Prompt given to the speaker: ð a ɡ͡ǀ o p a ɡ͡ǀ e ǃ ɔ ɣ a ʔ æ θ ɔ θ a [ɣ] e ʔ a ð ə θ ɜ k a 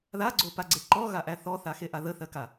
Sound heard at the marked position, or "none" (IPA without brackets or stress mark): x